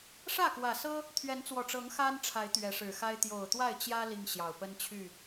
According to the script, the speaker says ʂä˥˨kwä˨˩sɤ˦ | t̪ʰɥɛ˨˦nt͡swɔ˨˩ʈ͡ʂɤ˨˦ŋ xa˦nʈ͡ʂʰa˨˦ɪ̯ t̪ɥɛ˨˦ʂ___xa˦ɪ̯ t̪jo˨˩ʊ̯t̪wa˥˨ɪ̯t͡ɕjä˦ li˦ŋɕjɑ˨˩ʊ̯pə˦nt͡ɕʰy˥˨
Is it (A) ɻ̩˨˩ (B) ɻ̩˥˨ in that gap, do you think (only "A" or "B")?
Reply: A